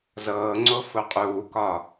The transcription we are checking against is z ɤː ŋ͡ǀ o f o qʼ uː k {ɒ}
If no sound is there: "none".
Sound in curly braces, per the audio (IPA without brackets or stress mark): ɒ